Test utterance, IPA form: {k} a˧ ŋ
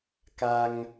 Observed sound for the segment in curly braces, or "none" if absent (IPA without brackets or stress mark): k